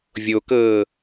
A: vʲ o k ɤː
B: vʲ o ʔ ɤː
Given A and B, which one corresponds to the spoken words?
A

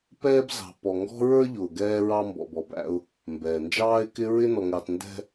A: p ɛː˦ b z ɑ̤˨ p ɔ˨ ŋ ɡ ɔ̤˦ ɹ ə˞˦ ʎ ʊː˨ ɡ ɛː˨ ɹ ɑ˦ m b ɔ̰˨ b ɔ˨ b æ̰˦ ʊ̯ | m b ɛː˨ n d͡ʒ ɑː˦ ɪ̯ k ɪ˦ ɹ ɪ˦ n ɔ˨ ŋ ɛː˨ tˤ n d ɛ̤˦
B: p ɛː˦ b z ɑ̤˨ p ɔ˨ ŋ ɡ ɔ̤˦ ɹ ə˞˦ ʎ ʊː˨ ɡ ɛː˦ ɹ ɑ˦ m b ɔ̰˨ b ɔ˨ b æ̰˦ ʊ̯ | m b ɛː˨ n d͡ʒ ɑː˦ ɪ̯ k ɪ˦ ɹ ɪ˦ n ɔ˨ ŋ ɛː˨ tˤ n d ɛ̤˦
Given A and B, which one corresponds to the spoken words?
B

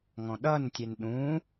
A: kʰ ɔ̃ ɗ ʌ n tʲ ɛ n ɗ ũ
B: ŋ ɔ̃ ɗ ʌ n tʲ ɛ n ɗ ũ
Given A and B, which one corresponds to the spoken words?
B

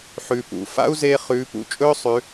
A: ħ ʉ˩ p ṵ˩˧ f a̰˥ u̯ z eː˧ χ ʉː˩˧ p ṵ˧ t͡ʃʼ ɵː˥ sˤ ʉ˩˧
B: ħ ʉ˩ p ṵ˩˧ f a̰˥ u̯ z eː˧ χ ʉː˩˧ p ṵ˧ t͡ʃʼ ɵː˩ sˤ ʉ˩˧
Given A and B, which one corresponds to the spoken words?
A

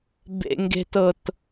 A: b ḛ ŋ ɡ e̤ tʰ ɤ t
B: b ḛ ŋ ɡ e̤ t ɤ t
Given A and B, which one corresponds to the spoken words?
B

